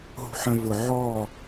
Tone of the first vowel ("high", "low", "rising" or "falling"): low